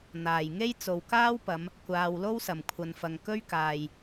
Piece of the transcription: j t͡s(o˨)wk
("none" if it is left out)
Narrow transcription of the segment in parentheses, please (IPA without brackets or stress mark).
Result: o˨